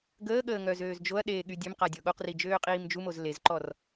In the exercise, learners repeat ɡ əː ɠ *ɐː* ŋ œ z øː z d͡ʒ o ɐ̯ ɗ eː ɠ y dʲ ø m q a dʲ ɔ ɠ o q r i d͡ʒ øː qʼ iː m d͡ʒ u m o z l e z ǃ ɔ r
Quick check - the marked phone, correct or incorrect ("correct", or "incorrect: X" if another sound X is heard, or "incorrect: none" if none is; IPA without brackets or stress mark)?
incorrect: əː